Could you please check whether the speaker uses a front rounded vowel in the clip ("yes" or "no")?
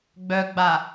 yes